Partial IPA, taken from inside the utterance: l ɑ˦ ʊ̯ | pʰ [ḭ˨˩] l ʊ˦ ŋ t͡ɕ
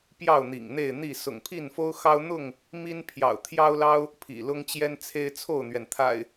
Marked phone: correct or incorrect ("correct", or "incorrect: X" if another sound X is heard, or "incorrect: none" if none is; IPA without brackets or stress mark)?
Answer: correct